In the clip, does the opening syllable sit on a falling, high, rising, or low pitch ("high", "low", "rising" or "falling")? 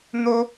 high